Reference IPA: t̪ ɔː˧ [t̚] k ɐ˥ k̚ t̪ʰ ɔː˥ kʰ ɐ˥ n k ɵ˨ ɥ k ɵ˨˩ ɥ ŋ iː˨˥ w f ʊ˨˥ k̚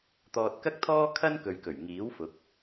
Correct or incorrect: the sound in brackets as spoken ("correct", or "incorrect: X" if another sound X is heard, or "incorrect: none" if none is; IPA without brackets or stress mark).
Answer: correct